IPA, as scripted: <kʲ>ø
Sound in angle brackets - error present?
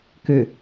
yes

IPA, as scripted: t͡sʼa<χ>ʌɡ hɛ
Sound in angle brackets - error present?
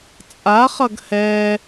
no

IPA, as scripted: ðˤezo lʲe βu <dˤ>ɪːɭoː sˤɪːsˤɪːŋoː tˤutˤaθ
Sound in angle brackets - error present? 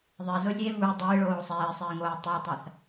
no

